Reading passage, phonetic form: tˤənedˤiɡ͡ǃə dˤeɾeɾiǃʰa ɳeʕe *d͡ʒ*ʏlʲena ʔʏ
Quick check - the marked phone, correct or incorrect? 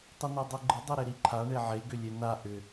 incorrect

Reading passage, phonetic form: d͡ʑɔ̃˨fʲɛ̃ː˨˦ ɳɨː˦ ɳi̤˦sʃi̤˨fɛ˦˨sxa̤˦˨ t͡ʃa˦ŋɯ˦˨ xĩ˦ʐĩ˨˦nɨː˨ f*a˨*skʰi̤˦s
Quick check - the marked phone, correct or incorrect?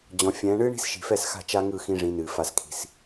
incorrect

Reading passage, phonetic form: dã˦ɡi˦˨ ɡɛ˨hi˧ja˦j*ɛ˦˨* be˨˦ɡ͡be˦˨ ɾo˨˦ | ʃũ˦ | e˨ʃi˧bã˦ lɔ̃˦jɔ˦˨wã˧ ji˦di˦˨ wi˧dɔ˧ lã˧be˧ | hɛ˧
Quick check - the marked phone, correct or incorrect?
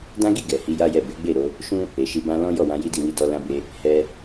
correct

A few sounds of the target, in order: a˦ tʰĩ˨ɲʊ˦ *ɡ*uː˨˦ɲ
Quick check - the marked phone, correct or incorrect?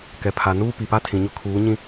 incorrect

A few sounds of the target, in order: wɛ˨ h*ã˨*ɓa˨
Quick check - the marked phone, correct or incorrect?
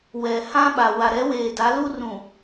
incorrect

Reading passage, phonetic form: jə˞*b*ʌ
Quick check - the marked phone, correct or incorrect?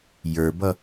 correct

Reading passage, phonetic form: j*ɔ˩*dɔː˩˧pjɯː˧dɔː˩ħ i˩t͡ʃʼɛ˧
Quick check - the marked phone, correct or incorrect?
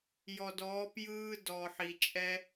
correct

